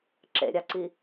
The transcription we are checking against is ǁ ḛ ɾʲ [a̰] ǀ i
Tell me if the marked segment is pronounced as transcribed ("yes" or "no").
no